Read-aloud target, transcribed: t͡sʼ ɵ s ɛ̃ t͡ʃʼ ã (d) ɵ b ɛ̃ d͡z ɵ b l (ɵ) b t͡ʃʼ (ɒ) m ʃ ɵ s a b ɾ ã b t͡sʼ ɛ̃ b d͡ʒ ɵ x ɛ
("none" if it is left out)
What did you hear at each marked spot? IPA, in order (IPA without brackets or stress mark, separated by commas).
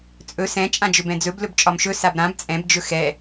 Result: d͡ʒ, ɵ, ɒ